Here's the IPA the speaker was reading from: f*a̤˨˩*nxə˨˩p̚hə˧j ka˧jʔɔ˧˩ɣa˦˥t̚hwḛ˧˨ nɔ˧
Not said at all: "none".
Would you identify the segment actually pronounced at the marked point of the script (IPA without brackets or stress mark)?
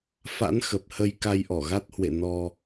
a̰˧˥